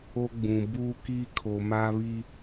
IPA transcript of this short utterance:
o˦ ɡ͡b ũ˨ b uː˦ k i˦ kʰ o˨ m aː˦ β i˦

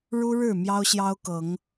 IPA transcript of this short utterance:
ɻ u˦ ɻ ɻ̩˥˨ m j ɑ˦ ʊ̯ ɕ j ɑ˦ ʊ̯ k ɤ˨˦ ŋ

